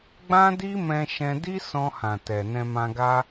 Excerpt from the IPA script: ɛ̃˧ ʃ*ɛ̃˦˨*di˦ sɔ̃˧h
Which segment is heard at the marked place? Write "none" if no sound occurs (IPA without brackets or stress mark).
ɛ̃˧